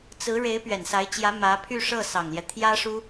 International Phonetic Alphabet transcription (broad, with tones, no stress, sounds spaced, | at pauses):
t͡s ɹ̩˧˥ ɻ e˧˥ ɪ̯ p ɥ ɛ˨˩ n s a˧˥ ɪ̯ t͡ɕ j ä˧˥ m ä˧˥ pʰ y˥˧ ʂ ɤ˥˩ s ɑ˨˩ ŋ l j ɛ˦ t̪ʰ j ä˥ ʂ u˥